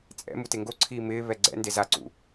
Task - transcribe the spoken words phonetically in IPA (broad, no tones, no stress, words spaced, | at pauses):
t͡sʼɛ̰mute ŋɡoǀʰiː mɪːβɛ ɡ͡ǀɛ̰nde zaǀṵ